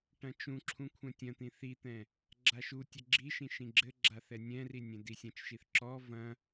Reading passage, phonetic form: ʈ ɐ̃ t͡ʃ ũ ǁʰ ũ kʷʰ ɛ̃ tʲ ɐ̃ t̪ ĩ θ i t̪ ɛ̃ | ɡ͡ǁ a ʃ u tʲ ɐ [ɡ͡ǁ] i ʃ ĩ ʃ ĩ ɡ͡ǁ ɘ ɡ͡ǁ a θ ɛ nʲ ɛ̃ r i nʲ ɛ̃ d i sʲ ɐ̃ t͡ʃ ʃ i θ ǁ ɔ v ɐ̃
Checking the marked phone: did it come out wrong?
no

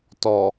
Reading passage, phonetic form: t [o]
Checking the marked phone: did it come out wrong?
yes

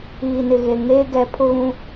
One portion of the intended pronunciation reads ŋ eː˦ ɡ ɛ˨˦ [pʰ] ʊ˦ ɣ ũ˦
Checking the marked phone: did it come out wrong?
no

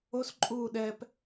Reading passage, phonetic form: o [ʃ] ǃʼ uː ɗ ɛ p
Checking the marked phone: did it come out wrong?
yes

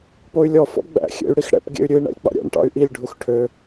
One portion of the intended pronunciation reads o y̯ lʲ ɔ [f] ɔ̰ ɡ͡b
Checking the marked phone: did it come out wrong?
no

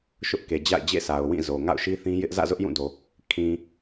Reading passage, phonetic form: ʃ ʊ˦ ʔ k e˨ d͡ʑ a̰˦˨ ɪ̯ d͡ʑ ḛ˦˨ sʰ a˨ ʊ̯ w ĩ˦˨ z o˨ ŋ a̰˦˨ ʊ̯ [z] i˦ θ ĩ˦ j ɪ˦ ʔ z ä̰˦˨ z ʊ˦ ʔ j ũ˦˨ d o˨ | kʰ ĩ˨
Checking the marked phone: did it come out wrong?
yes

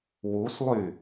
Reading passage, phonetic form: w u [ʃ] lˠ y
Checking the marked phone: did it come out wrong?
yes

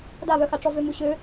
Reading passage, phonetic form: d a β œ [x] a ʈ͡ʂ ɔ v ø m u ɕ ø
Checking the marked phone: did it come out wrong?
no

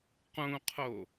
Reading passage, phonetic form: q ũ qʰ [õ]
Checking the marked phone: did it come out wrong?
yes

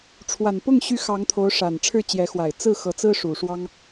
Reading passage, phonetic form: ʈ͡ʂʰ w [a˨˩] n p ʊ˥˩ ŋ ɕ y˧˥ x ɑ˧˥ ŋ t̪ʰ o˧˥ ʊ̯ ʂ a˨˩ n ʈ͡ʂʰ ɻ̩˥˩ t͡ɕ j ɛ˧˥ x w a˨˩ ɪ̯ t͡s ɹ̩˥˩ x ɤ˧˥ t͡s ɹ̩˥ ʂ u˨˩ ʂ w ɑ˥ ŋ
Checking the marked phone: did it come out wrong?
no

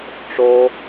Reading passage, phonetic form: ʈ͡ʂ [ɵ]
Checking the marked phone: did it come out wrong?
yes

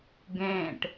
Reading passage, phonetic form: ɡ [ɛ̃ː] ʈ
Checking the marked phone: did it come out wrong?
no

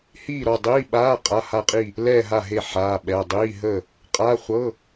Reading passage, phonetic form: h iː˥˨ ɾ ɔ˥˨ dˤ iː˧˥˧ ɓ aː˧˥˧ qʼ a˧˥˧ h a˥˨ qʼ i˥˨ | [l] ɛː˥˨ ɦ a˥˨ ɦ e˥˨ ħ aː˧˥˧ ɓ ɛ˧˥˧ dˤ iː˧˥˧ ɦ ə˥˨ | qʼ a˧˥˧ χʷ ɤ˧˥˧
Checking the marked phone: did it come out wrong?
no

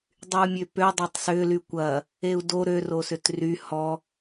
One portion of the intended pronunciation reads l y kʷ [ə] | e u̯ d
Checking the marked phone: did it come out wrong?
yes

